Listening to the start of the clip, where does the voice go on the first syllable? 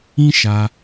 high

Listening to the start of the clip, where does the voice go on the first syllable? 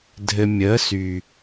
low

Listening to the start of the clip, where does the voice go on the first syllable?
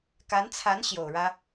rising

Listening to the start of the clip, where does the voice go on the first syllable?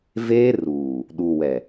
high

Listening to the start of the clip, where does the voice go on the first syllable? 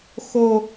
high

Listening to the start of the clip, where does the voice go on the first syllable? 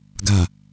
low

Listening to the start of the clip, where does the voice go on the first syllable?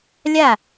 falling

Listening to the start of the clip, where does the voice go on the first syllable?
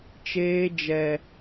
high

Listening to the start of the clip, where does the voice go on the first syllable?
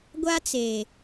high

